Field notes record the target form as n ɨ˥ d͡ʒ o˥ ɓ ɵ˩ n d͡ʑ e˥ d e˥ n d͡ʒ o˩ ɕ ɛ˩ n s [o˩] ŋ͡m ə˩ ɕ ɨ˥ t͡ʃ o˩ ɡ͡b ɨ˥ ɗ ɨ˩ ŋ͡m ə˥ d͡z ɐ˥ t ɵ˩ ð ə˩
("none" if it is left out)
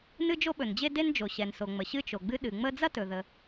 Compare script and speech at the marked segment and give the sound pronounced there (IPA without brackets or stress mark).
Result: o˩